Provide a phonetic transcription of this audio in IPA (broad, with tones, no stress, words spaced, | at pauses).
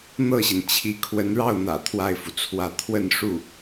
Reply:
n̪ɤ˥˩ɕi˩nt͡ɕʰi˧˥ kʰwə˧˥nɻɑ˥˩ʊ̯n̪ä̰˨˩ t̪ʰwa˥˩ɪ̯fu˩t͡sʰwä˥˧ t̪ʰwə˥˧nʂu˥˩